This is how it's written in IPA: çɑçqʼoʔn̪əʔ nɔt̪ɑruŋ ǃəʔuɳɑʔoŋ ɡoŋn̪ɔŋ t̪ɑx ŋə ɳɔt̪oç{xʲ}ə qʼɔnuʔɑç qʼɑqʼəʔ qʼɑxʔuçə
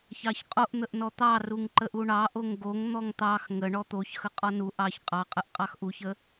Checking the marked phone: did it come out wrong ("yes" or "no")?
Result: yes